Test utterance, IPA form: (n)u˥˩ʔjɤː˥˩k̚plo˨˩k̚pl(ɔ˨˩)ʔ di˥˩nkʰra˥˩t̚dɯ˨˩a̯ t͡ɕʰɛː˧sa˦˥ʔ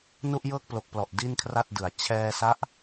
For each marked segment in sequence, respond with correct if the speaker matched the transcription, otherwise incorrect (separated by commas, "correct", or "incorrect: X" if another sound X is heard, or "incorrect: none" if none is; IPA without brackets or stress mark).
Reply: correct, correct